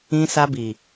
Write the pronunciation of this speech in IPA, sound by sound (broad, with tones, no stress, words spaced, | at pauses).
ĩ˧sa˧bi˨